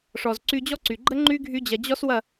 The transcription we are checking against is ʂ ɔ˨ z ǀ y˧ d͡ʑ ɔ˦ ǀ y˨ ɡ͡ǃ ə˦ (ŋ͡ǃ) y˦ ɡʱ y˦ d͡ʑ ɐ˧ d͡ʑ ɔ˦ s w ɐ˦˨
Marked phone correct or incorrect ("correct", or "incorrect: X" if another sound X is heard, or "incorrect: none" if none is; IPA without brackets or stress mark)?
correct